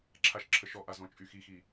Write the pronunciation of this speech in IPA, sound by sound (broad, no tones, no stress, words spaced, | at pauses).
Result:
ǁʰaʃǁʰəʃɔʔa zɔ̃t͡ʃʼyxixi